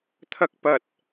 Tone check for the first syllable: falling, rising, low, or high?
high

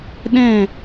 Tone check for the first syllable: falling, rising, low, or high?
falling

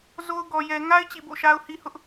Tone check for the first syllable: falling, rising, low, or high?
high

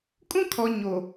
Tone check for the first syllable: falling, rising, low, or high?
high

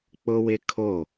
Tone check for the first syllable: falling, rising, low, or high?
high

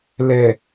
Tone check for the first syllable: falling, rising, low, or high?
low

